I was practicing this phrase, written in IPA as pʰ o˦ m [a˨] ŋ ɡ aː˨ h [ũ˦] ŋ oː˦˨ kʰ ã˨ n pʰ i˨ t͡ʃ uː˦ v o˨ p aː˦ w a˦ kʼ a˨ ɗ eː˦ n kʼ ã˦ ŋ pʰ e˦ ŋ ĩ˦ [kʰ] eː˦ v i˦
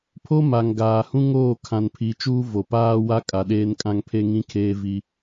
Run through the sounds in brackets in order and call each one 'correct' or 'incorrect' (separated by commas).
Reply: correct, correct, correct